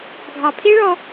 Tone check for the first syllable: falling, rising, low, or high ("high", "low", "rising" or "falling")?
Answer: low